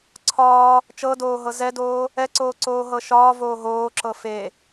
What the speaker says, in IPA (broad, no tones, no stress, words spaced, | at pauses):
ǀʰɒː | t͡ʃɤdoːɦɤ zɛdoː | ɛǀoːǀoː ɦɤʃɒː voːɦoːǁɤ fe